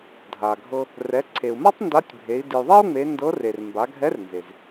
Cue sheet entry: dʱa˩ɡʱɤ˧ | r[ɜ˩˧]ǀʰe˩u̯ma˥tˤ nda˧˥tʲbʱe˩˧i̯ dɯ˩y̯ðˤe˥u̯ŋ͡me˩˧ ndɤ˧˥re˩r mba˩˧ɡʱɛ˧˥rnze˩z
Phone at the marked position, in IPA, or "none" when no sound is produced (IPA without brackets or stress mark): ɛ˩˧